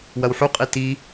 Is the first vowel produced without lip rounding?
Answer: yes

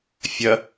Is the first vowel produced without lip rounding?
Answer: yes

